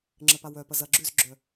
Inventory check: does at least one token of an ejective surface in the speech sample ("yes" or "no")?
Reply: no